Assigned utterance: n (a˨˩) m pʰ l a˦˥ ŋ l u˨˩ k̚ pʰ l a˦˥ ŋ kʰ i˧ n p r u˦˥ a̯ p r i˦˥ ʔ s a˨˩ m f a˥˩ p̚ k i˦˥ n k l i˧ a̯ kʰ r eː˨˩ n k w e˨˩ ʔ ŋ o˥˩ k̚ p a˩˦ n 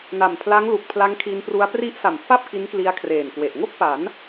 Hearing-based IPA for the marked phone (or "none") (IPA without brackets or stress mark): a˨˩